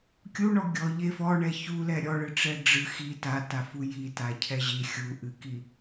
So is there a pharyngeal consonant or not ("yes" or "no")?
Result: no